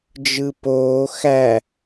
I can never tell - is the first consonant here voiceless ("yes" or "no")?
no